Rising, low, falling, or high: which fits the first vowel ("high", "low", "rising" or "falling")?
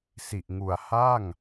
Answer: low